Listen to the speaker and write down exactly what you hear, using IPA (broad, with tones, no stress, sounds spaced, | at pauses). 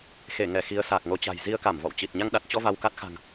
x e˧˩ ŋ ɛ˧˩ x i˨˦ ə̯ s aː˨˩ k̚ ŋ o˨˦ t͡ɕ a̤˨˩ j z i˧ ə̯ k a˧˩ m v ɔ̰˧˨ w t͡ɕ i˨˩ t̚ ɲ a˧ ŋ ɗ a˨˩ t̚ t͡ɕ ɔ˧ v a˧ w k a˦˥ t̚ x a̤˨˩ ŋ